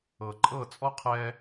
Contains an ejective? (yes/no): yes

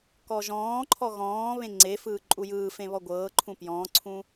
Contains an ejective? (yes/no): yes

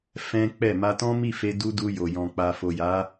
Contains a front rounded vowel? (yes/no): no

